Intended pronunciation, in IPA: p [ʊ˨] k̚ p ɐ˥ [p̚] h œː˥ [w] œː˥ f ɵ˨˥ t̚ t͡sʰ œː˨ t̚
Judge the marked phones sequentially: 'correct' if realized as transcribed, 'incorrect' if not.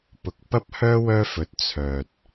correct, correct, correct

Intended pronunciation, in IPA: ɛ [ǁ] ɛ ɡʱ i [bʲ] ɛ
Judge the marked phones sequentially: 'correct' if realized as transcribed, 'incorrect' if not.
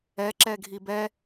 correct, incorrect

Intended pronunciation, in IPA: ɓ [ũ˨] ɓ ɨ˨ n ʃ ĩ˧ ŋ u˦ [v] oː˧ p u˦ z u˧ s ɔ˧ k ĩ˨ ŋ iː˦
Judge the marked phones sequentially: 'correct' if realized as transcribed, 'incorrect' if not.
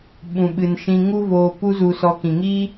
correct, correct

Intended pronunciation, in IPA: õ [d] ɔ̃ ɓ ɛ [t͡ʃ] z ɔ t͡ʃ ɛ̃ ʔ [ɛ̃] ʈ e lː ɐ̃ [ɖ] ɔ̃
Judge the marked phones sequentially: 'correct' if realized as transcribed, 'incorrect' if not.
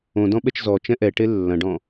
correct, correct, incorrect, correct

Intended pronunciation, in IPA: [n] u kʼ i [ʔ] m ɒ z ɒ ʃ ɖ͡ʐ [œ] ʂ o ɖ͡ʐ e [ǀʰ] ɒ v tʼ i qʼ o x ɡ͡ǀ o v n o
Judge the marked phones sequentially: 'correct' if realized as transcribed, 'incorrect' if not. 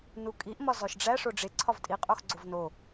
correct, correct, incorrect, correct

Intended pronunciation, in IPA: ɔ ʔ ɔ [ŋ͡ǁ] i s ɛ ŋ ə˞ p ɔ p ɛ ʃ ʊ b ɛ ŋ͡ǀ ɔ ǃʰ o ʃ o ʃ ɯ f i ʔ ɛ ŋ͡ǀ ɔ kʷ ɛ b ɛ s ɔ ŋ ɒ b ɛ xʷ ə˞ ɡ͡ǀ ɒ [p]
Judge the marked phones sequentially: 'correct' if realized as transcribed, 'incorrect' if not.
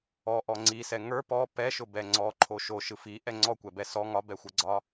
incorrect, incorrect

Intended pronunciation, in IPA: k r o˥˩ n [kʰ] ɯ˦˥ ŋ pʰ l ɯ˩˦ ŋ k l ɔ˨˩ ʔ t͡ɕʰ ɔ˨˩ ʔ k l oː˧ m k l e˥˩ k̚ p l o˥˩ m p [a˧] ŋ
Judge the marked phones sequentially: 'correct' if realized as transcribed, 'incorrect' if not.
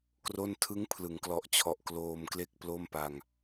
incorrect, correct

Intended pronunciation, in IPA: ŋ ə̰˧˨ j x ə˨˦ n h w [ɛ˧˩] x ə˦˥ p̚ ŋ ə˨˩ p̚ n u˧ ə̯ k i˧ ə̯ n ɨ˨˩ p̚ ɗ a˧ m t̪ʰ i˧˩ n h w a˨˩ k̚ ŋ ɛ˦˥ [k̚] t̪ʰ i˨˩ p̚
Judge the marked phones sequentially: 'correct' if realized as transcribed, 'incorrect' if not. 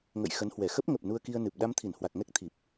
correct, correct

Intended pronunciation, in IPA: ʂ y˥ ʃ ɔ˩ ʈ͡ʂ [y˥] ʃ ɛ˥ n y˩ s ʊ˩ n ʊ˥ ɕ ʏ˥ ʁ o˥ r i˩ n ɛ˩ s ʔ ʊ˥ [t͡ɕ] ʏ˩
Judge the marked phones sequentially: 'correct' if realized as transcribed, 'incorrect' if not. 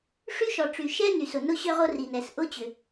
incorrect, correct

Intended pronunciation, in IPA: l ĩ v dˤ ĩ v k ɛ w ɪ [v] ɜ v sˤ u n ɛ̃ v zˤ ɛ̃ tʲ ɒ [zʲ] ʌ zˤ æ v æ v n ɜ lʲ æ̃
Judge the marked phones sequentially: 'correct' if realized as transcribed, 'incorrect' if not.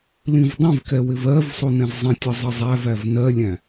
correct, incorrect

